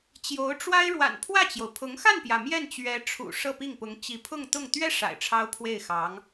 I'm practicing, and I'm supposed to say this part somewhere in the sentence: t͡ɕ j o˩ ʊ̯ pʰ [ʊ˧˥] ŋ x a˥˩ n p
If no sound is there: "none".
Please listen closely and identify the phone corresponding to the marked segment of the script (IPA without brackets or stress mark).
ʊ˧˥